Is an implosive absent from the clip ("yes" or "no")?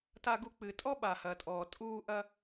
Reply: no